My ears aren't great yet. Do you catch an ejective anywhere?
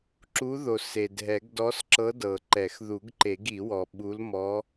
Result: no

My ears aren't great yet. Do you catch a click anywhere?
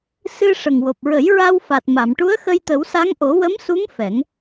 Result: no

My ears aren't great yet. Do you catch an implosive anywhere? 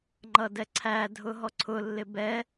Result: no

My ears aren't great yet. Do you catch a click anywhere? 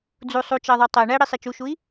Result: no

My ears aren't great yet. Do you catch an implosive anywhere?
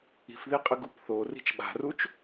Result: yes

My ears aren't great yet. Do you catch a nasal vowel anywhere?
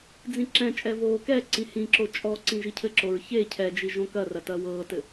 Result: yes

